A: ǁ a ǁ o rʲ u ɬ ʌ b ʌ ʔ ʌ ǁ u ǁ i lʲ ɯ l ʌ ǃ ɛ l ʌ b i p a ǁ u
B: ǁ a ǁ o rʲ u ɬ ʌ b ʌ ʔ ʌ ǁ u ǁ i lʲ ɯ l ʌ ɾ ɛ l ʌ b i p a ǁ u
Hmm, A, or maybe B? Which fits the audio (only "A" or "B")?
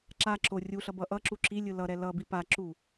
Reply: B